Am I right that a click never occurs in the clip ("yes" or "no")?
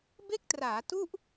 yes